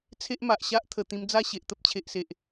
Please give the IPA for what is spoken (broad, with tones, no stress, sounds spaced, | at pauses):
t͡sʰ e˦ ʔ m a˨ ʔ ɕ a˦ ʔ t̪ʰ ə˨˩ t̪ ĩ˧ m d͡z a˥˧ ɕ e˨ ʔ t̪ ə˦ p̚ t͡ɕʰ e˨ ʔ s e˨ ʔ